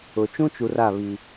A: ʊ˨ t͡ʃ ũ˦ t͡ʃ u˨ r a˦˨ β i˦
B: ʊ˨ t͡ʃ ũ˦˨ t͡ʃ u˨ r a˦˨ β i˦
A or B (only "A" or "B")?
A